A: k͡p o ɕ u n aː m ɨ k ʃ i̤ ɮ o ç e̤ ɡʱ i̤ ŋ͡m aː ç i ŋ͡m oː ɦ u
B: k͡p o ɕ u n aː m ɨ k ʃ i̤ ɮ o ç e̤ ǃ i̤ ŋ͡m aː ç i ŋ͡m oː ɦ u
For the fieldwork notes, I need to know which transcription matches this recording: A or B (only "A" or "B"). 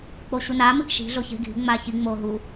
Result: A